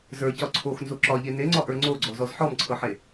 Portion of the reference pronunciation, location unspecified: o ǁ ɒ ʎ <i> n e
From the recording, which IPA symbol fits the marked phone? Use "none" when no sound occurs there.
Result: e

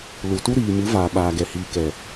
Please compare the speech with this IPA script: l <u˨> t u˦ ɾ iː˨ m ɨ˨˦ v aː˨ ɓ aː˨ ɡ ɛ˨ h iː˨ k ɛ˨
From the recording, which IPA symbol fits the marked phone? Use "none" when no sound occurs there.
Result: u˨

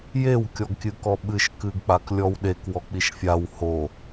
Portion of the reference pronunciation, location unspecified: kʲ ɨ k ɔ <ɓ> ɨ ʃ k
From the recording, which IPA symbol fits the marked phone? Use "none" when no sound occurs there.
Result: ɓ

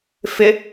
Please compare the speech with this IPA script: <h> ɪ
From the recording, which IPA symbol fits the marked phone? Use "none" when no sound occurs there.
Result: f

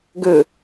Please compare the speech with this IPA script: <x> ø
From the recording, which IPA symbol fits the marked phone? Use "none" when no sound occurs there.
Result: ɡ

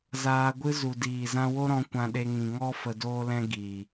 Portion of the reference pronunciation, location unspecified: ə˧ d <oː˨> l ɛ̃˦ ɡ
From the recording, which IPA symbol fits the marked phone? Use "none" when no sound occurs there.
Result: oː˦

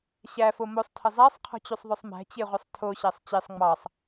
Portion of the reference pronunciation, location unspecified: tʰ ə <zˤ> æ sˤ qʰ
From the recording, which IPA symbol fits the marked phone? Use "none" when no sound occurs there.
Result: zˤ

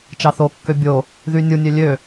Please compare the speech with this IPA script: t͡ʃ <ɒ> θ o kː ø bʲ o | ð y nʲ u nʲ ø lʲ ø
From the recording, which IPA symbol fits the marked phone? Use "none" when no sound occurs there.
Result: ɑ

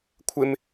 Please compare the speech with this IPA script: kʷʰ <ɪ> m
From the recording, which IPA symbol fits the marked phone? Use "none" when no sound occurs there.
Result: ɪ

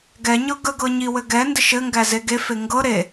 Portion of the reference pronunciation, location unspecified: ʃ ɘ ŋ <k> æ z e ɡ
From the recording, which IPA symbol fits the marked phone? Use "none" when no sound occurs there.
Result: ɡ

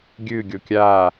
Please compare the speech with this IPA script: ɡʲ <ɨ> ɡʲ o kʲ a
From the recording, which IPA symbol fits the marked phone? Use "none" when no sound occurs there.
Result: ɨ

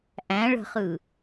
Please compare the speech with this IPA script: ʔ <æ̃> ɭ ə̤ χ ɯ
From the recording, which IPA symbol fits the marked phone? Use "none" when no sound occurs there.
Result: æ̃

